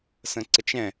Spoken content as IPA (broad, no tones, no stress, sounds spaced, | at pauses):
s ə̃ ǀ ə t͡ʃ ɛ̃